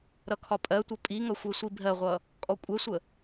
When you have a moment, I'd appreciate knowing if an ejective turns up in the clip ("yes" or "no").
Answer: yes